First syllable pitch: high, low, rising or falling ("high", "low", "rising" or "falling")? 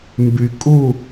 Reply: low